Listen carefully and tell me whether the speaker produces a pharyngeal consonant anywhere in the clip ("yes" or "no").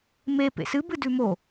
no